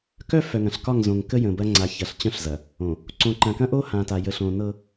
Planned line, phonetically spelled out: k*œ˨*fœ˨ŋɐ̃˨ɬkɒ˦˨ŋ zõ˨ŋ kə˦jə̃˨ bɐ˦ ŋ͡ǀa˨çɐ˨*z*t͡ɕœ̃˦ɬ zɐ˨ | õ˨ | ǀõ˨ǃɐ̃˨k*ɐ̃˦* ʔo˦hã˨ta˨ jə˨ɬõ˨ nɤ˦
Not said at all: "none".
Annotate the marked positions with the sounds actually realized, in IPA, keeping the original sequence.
œ˦, ɬ, ɐ̃˦

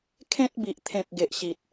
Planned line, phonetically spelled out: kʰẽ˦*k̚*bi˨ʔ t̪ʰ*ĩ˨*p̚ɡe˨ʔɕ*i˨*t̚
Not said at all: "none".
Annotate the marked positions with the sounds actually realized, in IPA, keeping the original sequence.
t̚, ẽ˨, i˨

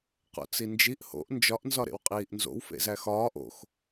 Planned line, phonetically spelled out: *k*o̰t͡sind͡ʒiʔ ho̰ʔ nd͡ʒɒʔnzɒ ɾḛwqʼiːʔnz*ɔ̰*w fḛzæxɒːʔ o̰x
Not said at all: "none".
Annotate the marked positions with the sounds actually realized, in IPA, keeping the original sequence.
q, o̰

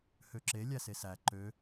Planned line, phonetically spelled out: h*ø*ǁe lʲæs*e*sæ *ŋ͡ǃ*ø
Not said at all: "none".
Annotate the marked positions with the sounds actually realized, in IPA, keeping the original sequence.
ø, e, ǃ

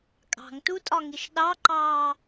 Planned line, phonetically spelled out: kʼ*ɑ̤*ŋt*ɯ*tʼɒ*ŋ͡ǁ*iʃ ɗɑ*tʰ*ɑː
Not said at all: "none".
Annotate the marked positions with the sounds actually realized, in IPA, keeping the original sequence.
ɑ̤, u, ŋ, ǃ

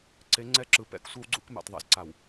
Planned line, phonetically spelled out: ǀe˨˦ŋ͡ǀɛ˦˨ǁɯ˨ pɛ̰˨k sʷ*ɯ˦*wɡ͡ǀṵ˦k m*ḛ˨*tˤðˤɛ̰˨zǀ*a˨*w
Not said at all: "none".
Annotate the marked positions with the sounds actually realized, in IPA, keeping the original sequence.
ɯ˦, ḛ˨, a˨

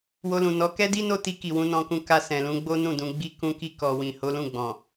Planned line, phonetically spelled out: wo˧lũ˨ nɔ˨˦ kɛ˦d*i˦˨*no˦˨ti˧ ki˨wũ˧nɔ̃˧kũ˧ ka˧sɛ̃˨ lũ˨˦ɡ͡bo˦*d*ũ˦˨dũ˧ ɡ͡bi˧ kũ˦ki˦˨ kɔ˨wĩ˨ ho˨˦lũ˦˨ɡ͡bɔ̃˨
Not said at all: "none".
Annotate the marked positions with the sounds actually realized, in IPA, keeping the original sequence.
i˦, n

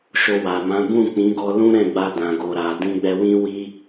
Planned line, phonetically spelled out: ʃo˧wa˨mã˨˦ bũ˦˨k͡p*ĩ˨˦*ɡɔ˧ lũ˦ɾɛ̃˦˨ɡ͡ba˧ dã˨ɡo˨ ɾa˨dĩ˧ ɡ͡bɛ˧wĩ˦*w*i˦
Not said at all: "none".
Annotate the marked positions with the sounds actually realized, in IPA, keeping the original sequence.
ĩ˨˦, w

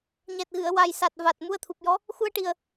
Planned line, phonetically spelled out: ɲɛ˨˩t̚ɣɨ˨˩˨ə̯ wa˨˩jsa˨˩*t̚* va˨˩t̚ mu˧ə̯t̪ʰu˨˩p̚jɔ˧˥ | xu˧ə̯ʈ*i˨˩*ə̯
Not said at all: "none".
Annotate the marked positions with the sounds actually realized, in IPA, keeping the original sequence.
t̚, i˨˩

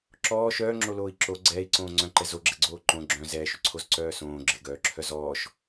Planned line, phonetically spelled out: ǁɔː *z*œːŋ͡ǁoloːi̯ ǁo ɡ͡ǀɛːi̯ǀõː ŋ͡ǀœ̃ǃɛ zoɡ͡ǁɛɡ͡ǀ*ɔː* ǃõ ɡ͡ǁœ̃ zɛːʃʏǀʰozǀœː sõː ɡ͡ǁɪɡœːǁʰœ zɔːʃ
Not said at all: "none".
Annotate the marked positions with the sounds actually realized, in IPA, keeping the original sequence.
ʃ, oː

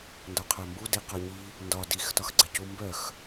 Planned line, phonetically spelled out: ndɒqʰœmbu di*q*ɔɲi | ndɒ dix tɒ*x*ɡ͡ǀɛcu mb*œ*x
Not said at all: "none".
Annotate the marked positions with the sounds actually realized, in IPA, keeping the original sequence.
q, x, œ

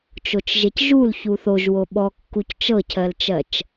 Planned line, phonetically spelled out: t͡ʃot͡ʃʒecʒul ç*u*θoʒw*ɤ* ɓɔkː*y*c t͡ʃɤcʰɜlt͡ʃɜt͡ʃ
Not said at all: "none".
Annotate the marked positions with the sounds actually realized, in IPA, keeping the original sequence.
u, o, u

